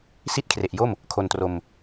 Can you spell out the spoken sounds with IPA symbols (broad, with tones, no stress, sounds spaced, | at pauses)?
s i˥˩ t̚ kʰ r e˨˩ ʔ j o˥˩ m | kʰ o˧ n t r o˧ m